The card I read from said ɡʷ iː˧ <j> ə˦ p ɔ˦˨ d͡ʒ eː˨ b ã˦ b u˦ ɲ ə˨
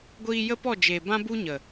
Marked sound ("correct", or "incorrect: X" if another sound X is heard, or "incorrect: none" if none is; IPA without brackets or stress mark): correct